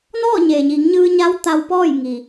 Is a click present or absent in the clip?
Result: absent